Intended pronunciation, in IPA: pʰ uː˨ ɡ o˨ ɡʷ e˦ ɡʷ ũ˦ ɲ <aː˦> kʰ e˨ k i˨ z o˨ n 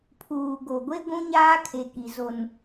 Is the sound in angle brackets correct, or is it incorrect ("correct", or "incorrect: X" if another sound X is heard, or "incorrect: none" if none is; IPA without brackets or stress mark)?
correct